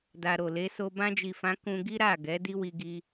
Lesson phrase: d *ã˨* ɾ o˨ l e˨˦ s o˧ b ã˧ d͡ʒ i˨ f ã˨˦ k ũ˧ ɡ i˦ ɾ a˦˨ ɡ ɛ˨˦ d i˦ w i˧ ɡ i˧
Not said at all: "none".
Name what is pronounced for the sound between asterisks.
a˨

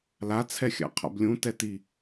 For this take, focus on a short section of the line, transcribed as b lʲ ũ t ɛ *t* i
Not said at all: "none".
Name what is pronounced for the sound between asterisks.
t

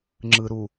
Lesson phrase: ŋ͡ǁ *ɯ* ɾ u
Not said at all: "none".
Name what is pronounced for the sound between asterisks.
ɯ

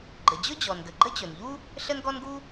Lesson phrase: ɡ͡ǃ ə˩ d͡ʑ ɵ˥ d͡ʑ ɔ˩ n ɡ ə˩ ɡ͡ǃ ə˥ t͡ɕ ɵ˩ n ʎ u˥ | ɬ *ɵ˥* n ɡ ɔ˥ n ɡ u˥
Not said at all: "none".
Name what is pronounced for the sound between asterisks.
ə˥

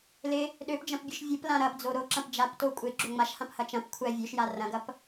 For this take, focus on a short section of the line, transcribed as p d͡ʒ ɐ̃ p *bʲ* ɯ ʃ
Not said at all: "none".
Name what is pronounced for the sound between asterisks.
bʲ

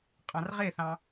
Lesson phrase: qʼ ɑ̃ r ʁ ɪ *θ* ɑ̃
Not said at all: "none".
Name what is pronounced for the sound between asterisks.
θ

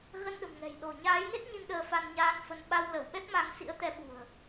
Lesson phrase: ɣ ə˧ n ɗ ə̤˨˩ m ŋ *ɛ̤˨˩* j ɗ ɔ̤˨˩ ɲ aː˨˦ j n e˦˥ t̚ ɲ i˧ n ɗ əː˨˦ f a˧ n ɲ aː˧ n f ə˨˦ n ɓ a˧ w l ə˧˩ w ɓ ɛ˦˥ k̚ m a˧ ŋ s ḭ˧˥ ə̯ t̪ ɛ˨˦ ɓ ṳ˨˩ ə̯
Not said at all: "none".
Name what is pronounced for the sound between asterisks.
ɛ̤˨˩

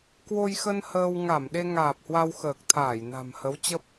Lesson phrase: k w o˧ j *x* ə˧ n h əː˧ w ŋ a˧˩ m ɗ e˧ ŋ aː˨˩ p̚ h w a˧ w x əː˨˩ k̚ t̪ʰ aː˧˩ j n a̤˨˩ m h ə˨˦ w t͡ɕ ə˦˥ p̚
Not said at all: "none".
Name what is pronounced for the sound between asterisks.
x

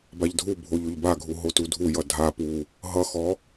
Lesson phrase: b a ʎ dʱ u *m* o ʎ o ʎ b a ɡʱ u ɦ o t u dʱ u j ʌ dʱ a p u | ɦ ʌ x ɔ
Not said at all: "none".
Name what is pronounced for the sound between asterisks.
bʱ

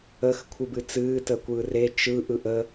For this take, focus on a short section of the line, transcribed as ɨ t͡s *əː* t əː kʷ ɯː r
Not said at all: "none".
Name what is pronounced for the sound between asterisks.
ɨː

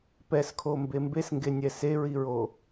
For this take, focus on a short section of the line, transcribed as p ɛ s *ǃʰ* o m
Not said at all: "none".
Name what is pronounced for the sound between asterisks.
kʰ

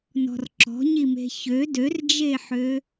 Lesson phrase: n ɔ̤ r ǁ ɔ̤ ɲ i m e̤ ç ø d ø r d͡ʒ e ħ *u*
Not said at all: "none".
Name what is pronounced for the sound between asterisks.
ø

